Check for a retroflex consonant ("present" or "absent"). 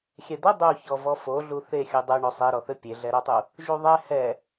present